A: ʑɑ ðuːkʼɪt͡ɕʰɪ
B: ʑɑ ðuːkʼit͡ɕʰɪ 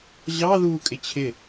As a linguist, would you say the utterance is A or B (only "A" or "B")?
A